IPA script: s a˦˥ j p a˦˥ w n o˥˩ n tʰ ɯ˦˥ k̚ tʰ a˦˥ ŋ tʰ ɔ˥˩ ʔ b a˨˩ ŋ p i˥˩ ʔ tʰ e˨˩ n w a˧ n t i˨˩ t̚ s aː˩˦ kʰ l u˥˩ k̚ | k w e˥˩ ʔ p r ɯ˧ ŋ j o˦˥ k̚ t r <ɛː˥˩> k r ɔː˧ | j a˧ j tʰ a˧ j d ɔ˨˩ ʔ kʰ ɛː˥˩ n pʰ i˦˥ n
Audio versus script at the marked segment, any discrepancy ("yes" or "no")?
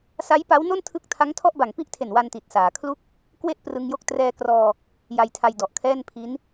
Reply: yes